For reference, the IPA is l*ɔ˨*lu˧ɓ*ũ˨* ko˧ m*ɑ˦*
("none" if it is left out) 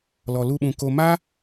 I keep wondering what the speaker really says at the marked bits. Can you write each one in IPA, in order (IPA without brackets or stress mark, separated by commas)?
ɔ˨, ũ˨, a˦